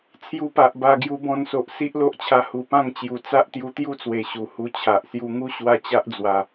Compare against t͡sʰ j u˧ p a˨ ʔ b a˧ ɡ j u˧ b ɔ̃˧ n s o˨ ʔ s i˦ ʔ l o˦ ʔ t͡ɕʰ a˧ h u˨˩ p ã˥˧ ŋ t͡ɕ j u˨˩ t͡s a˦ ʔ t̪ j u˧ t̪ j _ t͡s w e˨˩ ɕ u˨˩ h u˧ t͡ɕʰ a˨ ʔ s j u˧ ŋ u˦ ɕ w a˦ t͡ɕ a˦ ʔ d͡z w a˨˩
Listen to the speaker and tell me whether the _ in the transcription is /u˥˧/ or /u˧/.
u˥˧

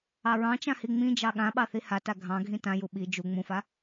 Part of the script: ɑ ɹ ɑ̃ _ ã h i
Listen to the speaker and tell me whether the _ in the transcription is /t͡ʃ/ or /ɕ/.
t͡ʃ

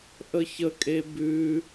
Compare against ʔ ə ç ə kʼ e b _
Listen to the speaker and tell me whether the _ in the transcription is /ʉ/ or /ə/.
ʉ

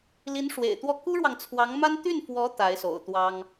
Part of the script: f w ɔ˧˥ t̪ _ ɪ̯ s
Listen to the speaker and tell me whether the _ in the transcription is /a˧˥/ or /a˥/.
a˧˥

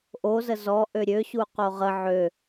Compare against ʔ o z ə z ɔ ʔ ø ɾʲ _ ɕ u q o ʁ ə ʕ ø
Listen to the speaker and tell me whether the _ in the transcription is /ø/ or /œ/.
ø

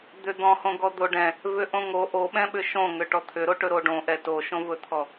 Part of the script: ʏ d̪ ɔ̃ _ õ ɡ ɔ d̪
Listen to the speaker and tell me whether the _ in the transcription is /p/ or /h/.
h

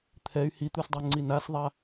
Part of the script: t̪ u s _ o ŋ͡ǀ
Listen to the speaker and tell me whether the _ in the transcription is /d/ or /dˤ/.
dˤ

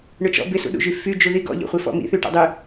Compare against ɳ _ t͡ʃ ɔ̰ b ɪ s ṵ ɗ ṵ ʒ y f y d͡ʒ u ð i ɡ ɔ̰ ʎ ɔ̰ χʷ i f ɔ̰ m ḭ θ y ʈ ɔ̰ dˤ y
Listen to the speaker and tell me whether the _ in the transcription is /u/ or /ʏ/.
ʏ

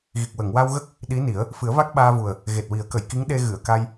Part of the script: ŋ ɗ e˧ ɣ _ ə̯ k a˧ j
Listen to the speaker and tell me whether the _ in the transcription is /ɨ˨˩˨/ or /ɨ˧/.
ɨ˨˩˨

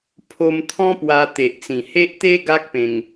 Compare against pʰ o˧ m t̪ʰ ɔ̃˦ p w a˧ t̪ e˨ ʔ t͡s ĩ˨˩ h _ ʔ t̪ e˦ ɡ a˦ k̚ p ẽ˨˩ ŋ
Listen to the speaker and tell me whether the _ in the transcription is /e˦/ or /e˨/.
e˦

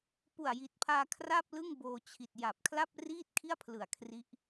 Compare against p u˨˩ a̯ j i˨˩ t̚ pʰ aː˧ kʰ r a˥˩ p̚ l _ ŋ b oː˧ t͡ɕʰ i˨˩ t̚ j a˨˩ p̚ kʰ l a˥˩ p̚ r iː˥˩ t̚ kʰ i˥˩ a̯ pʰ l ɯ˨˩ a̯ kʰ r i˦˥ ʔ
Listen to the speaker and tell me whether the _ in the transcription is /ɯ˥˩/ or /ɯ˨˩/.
ɯ˥˩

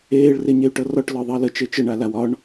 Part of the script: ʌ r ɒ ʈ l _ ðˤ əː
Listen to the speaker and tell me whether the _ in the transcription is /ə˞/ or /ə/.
ə˞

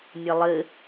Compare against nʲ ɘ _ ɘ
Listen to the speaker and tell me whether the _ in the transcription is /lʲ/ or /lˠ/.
lˠ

